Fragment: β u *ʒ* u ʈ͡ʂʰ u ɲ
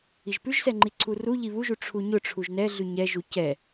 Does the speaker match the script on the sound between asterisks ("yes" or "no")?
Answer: yes